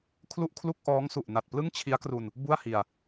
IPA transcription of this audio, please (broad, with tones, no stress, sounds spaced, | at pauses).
kʰ l u˥˩ ʔ kʰ l u˥˩ k̚ ʔ ɔː˦˥ ŋ s u˨˩ ʔ n a˨˩ t̚ p l ɯ˥˩ ŋ t͡ɕʰ i˦˥ a̯ k r u˧ n | b u˥˩ a̯ h i˧ a̯